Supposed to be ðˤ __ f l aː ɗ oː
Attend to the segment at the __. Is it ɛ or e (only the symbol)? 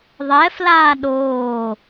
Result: ɛ